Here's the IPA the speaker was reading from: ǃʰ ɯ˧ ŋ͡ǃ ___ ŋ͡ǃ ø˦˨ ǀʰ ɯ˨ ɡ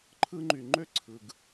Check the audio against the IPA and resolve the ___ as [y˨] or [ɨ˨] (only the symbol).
y˨